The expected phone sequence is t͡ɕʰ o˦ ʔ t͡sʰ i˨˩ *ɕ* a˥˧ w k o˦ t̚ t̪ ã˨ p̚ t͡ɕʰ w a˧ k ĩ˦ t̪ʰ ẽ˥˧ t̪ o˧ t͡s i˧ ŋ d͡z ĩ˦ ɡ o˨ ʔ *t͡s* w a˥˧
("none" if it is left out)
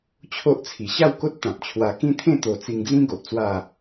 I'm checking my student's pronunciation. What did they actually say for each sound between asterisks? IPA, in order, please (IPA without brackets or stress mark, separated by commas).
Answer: ɕ, t͡s